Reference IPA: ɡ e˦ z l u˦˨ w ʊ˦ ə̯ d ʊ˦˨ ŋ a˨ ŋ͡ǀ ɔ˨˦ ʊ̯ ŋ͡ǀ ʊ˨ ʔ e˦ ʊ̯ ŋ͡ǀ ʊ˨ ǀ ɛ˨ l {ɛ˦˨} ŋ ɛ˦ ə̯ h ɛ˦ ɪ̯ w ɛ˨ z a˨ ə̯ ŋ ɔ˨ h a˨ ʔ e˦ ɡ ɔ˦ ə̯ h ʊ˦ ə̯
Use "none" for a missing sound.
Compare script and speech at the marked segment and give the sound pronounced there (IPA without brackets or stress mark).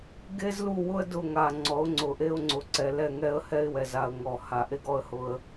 ɛ˦˨